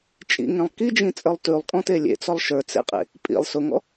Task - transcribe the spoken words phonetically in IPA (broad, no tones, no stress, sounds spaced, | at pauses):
t͡ʃʼ ḭ ŋ ẽ lˠ k i d͡ʒ ĩ t͡sʼ ə˞ lˠ t ʉ lˠ kʼ ɔ̃ t e lʲ ḛ t͡s ɔ lˠ ʃ ə˞ t͡s ḛ qʼ ḛ | pʼ ḭ lˠ s ʊ ŋ ɔ̰